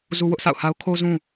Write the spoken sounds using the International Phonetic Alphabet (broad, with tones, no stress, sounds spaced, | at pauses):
z u˦ w ʊ˦ ʔ s a̰˦˨ ʊ̯ h a˦ ʊ̯ kʰ o˦ z ũ˦